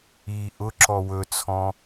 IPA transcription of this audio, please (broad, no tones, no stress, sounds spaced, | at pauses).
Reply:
i ʔ ʊ ǁ ɔ w ɵ t͡sʰ ɔ̃